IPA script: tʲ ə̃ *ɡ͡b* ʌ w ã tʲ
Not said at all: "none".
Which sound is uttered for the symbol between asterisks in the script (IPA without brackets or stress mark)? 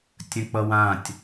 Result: k͡p